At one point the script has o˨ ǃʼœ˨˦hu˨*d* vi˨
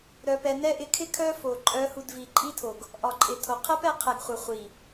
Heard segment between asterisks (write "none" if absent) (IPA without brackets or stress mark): d